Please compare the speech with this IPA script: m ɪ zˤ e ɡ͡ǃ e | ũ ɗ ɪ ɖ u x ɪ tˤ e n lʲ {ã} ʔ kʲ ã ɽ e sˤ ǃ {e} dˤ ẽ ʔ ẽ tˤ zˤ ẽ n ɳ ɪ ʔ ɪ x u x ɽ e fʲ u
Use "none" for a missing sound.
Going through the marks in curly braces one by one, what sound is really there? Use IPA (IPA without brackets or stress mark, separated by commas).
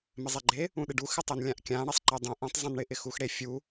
ã, e